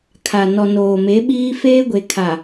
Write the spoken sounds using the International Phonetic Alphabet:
kʰ a˨ n ɔ˨ n oː˨ m e˨˦ ɓ iː˦ f eː˦ ɡʷ e˨ kʰ a˨

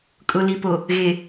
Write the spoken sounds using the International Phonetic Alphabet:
kʼ ʊ˨ l i˨ p o˨ | ɣ e˨

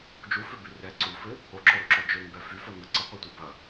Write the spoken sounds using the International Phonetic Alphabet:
d͡ʒ u f ø b y r ɛ ǀ u f ɪ | o ǁ ɔ ɾ u ǁ ɔ d͡ʒ ø ŋ b ɛ f y f œ ŋ ə ǀ ə qʷ ɛ tʷ œ b ɐ

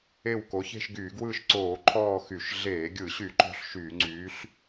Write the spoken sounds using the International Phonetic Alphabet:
e˦˨ w k o˩˧ ç e̤˦˨ ʃ ɡ yː˧˩˧ ɡ w ɯː˦˨ ʃ ǀ oː˧˩˧ ǃʰ ɔː˦˨ x y˧˩˧ ʃ ɮ eː˧˩˧ ɡʲ ɯ˧˩˧ ɕ y˧˩˧ ǃ ɔ̤˦˨ ɬ ʃ yː˧˩˧ ŋ͡ǀ yː˩˧ ɬ

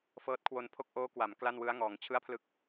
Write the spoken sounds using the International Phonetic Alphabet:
f ɤː˦˥ t̚ kʰ w o˧ n pʰ o˥˩ k̚ ʔ oː˦˥ k w a˩˦ m k l a˥˩ n w ɯ˦˥ a̯ ŋ ɔː˩˦ ŋ t͡ɕʰ ɯ˥˩ a̯ pʰ l ɯ˥˩ k̚

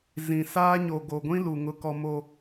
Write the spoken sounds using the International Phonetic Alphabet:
z ĩ˨ s aː˦ ɲ o˨ ɡ o˨ ɡʷ ĩ˦ l u˨ ŋ ʊ˨ k ɔ˨ m o˨

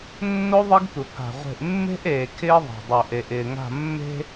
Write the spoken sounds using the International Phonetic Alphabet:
nː o˦ ðˤ ɪ˦ ɡ tʷ ɪ˨ pʰ a̤˨ ʁʷ e̤˨ ʔ mː e̤˦ ʔ eː˨ kʰ ɪː˦ ðˤ e̤˨ dˤ o˨ ʔ e˨ ʔ ɪː˨ ŋ a̤˦˨ mː e̤˦

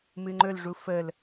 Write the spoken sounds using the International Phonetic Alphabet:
m ɨ ŋ͡ǃ ɵ l ʐ u f ə l

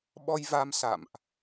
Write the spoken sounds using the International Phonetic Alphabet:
ɓ ɔ˧ j v a˧ m s a̰˧˨ m ʔ

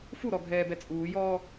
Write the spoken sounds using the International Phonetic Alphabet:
f u ɾ ɔ ɡʱ ɛː b ɛ t͡sʼ uː j ɔː

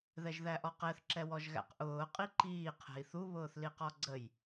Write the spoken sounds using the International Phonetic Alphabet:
ð ɛ ʒ ð æ ʔ ɔ q ɛ θ ǁ ɛ w ɔ ʒ ɣ æ̰ q ʔ ʊː qʼ i ǃ iː qʰ ɛ̤ i̯ θ u β ʊː θ l i q ɔ ɡ͡ǀ ə j

